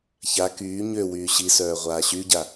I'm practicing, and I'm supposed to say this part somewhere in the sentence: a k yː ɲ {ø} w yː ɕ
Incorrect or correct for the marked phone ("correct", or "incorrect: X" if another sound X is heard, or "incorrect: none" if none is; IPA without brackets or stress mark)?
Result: correct